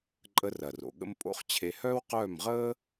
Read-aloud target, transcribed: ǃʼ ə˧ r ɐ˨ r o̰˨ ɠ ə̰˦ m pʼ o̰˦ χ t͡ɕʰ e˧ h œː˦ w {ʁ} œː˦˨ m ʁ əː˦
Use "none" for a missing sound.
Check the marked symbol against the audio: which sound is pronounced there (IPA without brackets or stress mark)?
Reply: q